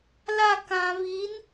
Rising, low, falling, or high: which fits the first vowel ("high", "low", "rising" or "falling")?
falling